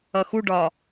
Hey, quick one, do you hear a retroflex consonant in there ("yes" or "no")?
yes